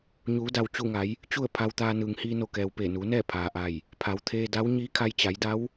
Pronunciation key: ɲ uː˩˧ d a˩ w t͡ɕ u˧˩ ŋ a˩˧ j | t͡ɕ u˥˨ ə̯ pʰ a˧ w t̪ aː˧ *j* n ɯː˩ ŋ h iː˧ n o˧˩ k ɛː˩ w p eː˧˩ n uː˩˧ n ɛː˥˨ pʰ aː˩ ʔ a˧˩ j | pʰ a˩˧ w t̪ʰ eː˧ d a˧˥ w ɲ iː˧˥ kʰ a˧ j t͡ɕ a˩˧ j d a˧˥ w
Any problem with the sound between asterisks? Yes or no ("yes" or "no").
yes